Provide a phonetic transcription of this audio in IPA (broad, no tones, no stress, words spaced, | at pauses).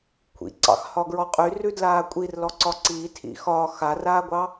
kʷʰḭǀɑ̰xhɒɡɹɔ qʼyrʉdlaː kʷʼirlɔǀɒ ǀiːtʰḭ xɒ xaraːɡʷɑ